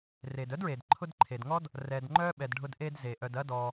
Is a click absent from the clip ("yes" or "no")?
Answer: no